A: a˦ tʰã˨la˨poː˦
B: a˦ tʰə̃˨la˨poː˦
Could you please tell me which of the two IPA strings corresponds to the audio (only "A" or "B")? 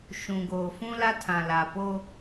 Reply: A